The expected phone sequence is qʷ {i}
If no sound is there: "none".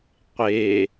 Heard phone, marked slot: e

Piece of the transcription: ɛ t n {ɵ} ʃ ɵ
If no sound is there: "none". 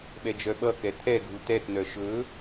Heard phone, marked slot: œ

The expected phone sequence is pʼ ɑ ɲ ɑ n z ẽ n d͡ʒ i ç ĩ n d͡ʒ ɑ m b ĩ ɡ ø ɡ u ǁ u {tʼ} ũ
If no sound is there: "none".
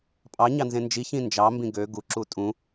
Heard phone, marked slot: tʼ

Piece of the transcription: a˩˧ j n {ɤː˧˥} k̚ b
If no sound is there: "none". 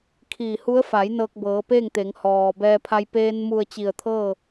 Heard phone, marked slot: ɤː˧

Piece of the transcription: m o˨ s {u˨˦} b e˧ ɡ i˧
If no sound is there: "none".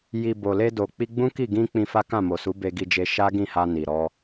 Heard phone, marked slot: u˨˦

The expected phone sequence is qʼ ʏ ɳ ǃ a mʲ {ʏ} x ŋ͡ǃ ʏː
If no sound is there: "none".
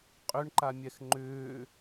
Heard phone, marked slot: ɛ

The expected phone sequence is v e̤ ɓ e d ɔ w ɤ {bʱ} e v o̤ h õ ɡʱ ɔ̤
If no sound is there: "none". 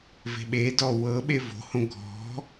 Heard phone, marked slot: ɓ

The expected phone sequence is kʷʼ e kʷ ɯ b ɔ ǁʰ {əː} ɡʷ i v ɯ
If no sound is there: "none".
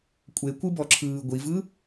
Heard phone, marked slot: ɯː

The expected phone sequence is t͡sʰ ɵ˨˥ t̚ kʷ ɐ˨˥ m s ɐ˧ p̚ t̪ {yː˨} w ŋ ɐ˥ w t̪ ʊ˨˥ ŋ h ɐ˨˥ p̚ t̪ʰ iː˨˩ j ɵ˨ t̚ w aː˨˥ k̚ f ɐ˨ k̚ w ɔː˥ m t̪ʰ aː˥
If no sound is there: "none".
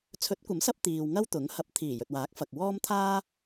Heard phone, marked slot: iː˨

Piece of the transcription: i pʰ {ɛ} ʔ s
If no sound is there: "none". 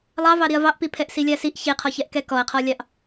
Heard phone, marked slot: ɛ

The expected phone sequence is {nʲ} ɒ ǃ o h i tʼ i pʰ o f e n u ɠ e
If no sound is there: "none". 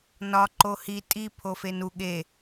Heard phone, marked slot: n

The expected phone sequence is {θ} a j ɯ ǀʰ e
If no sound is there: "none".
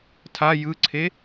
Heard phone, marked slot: tʰ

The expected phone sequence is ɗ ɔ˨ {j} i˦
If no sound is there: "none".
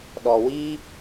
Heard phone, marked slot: w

